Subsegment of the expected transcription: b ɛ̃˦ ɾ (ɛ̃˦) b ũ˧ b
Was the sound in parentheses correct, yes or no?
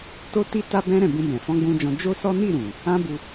no